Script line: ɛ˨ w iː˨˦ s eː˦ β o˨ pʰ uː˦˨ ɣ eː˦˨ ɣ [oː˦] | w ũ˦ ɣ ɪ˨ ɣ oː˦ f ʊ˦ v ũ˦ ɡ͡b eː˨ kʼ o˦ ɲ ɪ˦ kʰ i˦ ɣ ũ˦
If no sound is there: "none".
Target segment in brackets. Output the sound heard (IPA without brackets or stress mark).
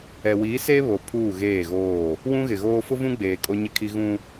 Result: oː˦˨